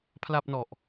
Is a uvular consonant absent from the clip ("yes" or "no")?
yes